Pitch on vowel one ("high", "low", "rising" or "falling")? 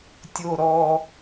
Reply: low